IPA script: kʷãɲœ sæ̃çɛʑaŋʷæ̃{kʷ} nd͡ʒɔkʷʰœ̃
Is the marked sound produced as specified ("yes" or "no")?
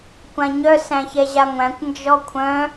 yes